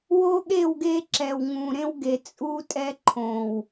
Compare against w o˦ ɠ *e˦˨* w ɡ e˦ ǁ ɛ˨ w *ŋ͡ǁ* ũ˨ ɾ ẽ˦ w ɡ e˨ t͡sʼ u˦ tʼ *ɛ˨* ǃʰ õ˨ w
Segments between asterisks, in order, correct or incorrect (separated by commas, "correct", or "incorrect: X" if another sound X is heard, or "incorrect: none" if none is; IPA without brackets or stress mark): correct, incorrect: ŋ, incorrect: ɛ˦